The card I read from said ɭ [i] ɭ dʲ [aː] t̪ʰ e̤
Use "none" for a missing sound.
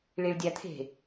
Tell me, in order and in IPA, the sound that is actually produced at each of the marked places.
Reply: i, a

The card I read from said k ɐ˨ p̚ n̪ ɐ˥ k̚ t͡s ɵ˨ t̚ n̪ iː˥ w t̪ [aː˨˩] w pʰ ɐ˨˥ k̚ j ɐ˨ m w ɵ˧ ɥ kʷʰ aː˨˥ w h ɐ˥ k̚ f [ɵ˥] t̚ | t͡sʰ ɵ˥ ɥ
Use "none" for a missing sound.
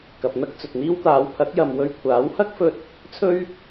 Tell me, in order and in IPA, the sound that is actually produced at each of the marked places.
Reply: aː˨˧, ɵ˧

